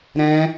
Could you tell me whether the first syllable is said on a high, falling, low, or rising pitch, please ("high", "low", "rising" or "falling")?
high